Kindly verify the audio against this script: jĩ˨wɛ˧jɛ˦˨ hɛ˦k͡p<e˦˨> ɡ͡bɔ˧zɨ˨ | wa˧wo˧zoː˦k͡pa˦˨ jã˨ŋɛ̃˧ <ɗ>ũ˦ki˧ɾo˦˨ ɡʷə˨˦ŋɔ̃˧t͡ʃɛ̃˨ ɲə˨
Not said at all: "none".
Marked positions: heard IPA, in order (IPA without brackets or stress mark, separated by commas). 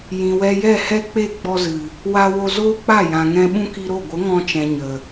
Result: e˦˨, ɓ